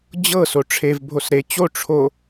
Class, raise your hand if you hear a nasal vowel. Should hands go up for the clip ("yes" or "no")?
no